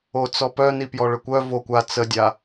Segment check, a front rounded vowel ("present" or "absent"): present